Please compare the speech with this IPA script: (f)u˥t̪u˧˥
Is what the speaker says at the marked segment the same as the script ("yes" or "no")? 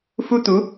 yes